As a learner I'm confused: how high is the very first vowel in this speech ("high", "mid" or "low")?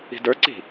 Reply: high